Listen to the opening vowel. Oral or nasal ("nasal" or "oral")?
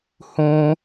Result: nasal